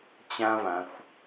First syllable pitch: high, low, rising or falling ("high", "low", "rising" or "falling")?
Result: high